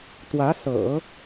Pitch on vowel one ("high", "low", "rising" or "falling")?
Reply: rising